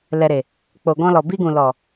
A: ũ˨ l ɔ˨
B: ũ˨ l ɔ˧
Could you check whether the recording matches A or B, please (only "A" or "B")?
A